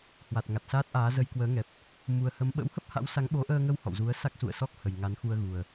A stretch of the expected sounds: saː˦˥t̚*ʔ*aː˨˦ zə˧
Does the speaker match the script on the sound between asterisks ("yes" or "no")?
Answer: yes